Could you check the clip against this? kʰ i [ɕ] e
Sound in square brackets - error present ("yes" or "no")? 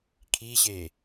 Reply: no